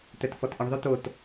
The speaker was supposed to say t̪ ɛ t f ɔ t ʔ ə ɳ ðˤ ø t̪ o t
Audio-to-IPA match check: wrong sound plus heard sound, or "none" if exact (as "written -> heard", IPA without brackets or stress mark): none